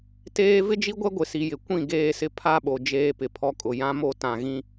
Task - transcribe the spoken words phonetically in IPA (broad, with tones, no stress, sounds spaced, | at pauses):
t eː˦ v ɪ˦ d͡ʒ i˦ ɡʷ ɛ˦ ɡʷ ɪ˨ s i˨ j ɪ˨ kʷ ĩ˦˨ ɡ eː˦˨ s ɪ˦ pʰ a˦ ɓ o˨ d͡ʒ eː˦ p ɪ˨ pʰ ɔ˦ kʼ ʊ˨ j ã˦ m o˦ t ã˨ ɣ ĩ˦